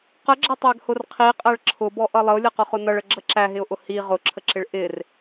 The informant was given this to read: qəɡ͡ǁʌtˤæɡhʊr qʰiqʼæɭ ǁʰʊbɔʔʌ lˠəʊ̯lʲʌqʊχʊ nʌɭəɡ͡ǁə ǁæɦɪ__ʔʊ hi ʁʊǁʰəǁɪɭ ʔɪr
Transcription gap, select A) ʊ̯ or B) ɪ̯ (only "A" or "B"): A